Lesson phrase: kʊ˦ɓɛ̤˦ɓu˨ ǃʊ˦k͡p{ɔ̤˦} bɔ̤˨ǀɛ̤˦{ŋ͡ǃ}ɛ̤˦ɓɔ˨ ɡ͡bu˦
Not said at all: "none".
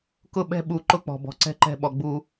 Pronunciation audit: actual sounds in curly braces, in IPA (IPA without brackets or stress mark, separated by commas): ɔ̤˨, ǃ